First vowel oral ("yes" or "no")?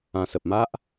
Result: no